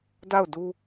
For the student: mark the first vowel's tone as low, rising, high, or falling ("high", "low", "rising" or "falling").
falling